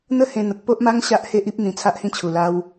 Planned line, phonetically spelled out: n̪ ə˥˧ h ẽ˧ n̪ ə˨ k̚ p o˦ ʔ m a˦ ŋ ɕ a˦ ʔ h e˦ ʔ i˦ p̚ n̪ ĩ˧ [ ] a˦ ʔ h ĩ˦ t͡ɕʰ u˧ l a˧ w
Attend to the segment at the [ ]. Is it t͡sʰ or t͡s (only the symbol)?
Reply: t͡sʰ